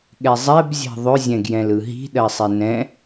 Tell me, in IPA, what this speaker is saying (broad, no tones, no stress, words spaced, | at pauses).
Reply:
ɠɛzˤɛb zʲɛ̤ðˤɵ zʲɛ̃ɡjɛ̃lɯɦi̤ ɗɜsˤenɛ̃